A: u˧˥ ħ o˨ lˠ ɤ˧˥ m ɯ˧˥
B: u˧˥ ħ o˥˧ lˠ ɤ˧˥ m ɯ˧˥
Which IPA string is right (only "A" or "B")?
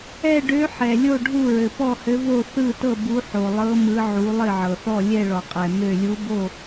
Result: A